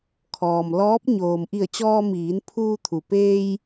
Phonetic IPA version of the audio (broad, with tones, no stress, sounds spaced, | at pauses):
kʰ ɔː˩ m l ɔː˧˥ p̚ ɲ oː˩ m ʔ i˧˩ ə̯ t͡ɕ ɔː˧ m iː˩˧ n pʰ uː˧ t̪ʰ u˩ p eː˧ j